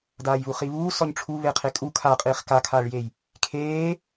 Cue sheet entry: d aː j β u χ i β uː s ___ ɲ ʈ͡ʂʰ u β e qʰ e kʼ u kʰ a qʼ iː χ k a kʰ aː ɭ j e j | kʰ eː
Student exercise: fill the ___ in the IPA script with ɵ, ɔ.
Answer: ɔ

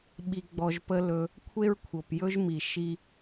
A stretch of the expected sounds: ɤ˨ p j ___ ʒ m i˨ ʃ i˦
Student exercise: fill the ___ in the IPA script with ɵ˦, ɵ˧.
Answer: ɵ˦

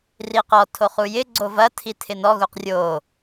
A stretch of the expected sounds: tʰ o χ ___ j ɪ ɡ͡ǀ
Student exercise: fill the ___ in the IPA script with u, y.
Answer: u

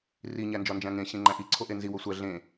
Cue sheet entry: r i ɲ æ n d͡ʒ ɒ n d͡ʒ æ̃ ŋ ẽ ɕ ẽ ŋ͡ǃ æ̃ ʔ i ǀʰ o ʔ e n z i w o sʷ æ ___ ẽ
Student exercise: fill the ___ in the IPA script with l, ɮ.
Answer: ɮ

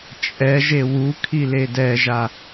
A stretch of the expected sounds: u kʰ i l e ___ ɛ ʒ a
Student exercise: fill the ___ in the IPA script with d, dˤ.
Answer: d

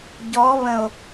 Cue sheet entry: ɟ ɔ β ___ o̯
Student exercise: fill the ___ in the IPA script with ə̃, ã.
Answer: ə̃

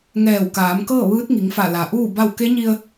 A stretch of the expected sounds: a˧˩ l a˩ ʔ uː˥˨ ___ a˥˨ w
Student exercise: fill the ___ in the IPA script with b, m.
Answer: b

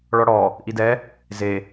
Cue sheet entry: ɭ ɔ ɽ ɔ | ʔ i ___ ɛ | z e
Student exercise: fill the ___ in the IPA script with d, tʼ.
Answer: d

